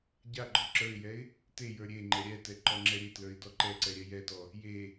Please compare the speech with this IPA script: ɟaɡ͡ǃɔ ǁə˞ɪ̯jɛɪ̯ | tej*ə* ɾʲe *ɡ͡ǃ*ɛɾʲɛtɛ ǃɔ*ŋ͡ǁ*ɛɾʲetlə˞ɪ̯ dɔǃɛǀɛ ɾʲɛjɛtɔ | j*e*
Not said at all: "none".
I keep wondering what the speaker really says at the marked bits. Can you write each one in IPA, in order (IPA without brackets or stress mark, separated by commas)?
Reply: ə˞, ŋ͡ǃ, ŋ͡ǁ, e